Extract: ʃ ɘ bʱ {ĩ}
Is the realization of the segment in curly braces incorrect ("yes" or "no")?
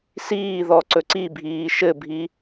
yes